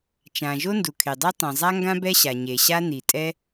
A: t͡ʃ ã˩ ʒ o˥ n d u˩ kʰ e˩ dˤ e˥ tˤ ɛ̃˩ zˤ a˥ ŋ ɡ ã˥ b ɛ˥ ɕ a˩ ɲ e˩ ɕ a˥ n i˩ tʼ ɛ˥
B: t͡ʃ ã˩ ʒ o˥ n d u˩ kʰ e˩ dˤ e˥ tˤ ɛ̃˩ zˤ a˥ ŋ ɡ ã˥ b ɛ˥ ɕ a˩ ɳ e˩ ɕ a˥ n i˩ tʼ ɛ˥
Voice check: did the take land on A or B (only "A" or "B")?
A